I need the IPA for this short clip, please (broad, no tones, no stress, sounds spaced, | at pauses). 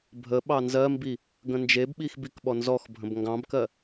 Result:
bʱ ə ɓ ɑ n z ɜ m b i | ɡ ə̃ n d͡ʒ e b ɓ i x b i k ɓ ɔ n z ɔ x bʱ ə̃ b ŋ ɡ ɑ̃ b k ɜ